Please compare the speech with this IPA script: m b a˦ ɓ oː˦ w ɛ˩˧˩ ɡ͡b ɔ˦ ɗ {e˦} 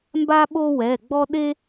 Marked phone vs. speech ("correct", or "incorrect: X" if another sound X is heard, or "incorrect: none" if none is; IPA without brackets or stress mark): correct